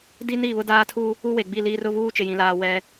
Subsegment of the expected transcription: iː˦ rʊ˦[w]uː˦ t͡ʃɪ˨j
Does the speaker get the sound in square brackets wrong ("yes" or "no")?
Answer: yes